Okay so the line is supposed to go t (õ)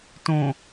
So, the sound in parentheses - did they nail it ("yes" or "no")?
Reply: yes